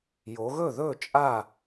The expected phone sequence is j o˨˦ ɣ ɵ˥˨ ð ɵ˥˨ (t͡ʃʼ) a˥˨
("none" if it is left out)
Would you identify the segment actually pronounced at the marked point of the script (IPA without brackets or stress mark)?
t͡ʃʼ